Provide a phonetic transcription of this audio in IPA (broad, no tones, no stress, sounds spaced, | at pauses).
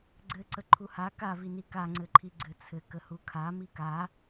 ɡ͡ǀ ɘ ǀ ə ǃʰ u h a k a v i n i k a ŋ͡ǀ ɘ ǃʰ i ɡ͡ǀ ɘ t͡sʰ ɘ k ə h u kʰ a m i k a